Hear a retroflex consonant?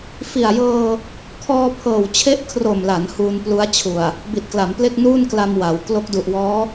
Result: no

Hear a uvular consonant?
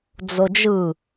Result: no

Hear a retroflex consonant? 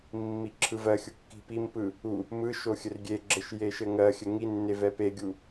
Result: no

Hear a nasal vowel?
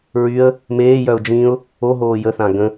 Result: yes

